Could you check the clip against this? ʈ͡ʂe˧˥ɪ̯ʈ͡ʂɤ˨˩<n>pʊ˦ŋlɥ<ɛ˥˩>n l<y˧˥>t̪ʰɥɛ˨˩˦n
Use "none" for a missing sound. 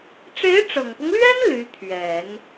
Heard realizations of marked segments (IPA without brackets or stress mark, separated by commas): ŋ, ɛ˥, y˧˥